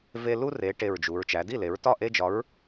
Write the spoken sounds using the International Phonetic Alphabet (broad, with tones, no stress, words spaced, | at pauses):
ve˦ lu˦re˩˧ ʈe˧˩ɹd͡ʒu˩˧ɹ t͡ʃæ˩˧di˥˩le˩˧ɹ tɒ˥˩ʔe˦d͡ʒɒ˨˥ɹ